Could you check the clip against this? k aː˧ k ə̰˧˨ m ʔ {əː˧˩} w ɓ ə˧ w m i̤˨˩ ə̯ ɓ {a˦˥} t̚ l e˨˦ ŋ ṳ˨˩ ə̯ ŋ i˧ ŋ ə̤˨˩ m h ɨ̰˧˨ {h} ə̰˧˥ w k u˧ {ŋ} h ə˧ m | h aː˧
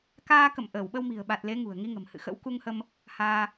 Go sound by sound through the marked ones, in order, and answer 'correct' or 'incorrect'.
correct, incorrect, incorrect, correct

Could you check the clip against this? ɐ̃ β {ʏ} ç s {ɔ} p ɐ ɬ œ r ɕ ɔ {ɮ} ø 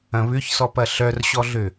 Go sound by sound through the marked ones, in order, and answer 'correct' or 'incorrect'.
correct, correct, correct

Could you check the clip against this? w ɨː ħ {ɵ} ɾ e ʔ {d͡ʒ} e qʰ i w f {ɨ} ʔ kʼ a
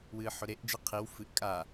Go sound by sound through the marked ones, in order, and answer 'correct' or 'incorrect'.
correct, correct, correct

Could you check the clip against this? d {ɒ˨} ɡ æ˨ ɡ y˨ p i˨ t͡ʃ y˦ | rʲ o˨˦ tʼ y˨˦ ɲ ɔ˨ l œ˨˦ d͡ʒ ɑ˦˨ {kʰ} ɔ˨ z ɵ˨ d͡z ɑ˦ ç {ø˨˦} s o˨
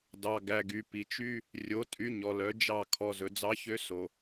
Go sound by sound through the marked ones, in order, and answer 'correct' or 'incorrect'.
incorrect, correct, incorrect

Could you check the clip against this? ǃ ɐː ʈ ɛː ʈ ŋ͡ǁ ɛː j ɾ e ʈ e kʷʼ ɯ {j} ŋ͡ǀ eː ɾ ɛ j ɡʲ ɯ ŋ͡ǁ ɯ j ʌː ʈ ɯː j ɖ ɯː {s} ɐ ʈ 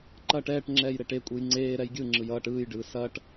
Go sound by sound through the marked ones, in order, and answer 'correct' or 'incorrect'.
correct, correct

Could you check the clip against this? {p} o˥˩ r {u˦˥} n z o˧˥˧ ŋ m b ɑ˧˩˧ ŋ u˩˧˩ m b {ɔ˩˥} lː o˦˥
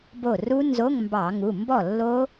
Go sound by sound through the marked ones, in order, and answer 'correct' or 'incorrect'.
incorrect, correct, incorrect

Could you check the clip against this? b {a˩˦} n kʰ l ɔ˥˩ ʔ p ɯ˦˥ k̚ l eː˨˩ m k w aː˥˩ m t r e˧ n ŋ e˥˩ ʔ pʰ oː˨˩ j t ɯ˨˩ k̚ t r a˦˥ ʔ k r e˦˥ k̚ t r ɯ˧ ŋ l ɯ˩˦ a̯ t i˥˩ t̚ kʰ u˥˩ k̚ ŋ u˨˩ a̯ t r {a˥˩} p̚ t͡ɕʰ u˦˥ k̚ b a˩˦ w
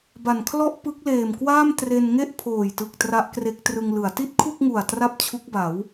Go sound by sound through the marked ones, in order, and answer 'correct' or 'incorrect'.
incorrect, correct

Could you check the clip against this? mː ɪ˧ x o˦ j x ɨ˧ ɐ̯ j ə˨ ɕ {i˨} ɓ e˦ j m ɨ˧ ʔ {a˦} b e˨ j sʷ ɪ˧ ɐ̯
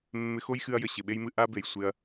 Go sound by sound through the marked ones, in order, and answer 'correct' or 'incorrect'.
incorrect, correct

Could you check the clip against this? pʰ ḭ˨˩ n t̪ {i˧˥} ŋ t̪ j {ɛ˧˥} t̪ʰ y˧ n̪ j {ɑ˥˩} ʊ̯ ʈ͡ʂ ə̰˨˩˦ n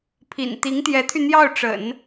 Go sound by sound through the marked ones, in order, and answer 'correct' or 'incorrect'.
correct, correct, correct

